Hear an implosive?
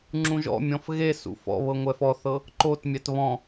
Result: no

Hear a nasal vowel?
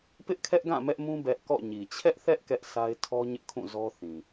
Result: yes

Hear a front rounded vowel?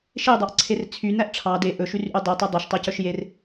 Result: yes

